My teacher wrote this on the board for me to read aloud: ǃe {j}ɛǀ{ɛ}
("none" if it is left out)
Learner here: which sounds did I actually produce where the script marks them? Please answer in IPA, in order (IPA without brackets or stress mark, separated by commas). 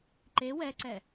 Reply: w, ɛ